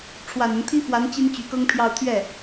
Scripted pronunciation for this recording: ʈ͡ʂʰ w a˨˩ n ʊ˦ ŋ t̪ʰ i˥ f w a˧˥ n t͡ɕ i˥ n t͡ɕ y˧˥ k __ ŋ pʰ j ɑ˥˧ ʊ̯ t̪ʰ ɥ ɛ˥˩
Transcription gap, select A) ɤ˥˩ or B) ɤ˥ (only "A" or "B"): B